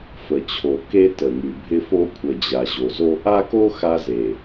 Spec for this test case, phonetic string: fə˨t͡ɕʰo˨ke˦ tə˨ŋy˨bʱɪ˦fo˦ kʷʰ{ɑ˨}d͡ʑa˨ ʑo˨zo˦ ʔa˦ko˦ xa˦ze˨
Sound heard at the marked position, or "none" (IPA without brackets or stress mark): ə˨